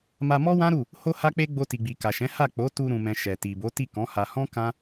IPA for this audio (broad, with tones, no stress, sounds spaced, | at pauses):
m a˧ m ɔ˦ w ã˦ ɾ u˦˨ | h o˦ h a˦ k͡p e˦ ɡ͡b o˧ t i˨ ɡ͡b i˨ k a˨ ʃ ɛ̃˨˦ h a˦˨ k͡p o˨˦ t u˧ ɾ ũ˨ m ɛ̃˨ ʃ ɛ˨ t i˨ b o˨˦ t i˦˨ k ɔ̃˨˦ h a˧ h ɔ̃˦ k ã˦